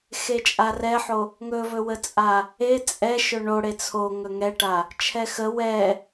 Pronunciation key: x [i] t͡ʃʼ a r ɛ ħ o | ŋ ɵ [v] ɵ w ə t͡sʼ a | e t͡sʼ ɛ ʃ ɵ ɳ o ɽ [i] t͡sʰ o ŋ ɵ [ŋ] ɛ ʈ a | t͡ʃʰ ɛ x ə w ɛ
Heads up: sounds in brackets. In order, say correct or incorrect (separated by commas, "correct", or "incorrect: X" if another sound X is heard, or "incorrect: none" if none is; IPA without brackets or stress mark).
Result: incorrect: e, correct, incorrect: e, correct